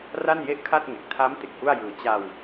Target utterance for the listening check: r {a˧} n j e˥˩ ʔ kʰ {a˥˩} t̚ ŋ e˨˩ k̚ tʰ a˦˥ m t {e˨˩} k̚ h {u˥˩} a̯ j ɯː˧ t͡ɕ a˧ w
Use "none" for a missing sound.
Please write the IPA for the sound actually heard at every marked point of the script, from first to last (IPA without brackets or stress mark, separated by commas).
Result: a˥˩, a˥˩, e˨˩, u˥˩